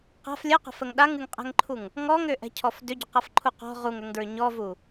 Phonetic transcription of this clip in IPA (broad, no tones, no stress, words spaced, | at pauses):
qa̤f lʲəqa̤fəŋ ɗaŋɨŋqʼɛ̤ŋǃʰuŋ | ŋɔŋʏʔɛ̤cʰɔf dʏɟʏqafǃʰu qɔ̤ ʁuŋʏŋdɹʏ ɲɔvu